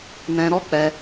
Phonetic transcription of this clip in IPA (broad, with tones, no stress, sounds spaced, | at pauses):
n ɛ̃˧ ɾ ɔ˦ k͡p ɛ˧